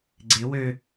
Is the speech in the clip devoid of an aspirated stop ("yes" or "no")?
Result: yes